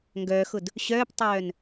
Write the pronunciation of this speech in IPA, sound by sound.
ŋɡœːxʊd | ɕœːptˤœːn

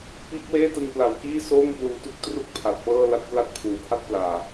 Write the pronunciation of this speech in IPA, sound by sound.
piː˦˥k̚weː˥˩tɯ˧ŋ pla˨˩wkiː˥˩ soː˥˩ŋpluː˧tu˦˥k̚ tru˥˩k̚pʰa˨˩t̚ pɤː˥˩la˥˩t̚ pla˥˩t̚pʰuː˨˩pʰa˥˩t̚ plaː˨˩

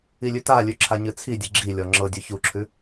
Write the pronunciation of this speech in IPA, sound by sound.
ilʲʉtalʲʉ ǁʰaɲɨt͡sʰidʲɨ ɡ͡ǁilʲɔ ŋ͡ǁɤdʲʉ çuǁʰʉ

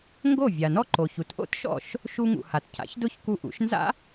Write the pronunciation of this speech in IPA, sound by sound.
ŋɡo˥˩ vʲa˩nɔ˥ ǃo˩çu˩t ʔo̰˥tʃɔ̰˥˩ʃ | ʃu˧ŋṵ˩ ha˩tcʰa̰˩˥çdʊ˥˩ç ku˧ʔṵ˩˥ʃ nza̰˥

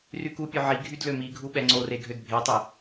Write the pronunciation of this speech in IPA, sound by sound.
rykupʲø ʕi ɡʱydlømiɡʱu ɓɛŋ͡ǀore ɡʱødbʱetˤe

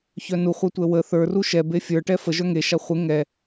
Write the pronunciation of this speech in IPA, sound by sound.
çœnuχʷatʷɛ wə θə˞ru ʃɛbe fʲə˞ʈɛ fə ʒœŋe ʃaχʷe ŋɛ

